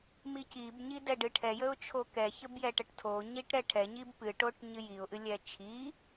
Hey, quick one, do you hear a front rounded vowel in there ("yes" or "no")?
no